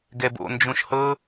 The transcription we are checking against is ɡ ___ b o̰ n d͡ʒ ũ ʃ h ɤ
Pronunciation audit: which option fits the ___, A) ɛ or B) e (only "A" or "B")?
A